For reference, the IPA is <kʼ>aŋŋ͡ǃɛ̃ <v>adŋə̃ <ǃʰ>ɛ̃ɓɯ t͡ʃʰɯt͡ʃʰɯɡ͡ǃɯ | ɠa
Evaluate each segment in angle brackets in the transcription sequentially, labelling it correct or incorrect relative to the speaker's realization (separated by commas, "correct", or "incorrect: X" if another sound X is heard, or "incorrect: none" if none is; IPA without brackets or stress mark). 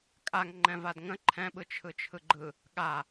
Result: correct, correct, correct